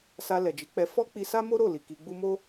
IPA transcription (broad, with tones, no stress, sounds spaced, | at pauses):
s a˧ l ɛ˨ d͡ʒ i˨˦ k͡p ɛ˧ f ɔ˦ k͡p i˧ s a˦ m o˦ ɾ o˦˨ l i˨ k i˧ ɡ͡b u˦ m o˦